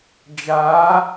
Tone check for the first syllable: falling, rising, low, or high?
rising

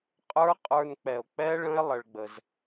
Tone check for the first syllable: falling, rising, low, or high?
high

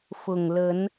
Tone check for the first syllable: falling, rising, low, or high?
low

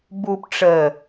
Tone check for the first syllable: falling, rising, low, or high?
low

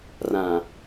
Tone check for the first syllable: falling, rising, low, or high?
low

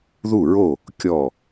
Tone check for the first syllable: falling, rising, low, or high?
falling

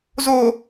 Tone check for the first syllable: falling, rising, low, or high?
low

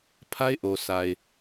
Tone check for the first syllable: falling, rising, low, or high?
high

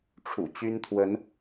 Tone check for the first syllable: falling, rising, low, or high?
low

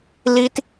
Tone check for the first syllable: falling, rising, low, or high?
high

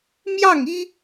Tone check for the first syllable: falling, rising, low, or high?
falling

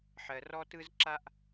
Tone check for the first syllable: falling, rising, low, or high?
low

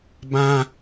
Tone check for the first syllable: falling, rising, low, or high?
high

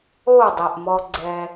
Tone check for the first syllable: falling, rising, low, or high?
falling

